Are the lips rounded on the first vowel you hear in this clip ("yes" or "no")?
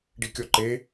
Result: no